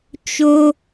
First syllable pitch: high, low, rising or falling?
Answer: high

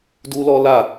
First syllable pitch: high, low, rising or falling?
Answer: high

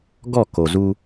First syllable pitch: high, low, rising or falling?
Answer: falling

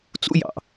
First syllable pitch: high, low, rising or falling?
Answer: high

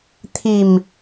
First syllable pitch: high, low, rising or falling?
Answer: low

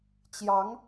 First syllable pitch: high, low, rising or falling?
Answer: rising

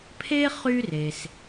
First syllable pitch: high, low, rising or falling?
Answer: high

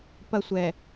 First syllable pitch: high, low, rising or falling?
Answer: high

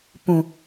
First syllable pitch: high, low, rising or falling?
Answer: low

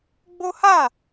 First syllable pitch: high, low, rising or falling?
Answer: high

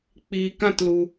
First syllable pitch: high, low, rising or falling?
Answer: low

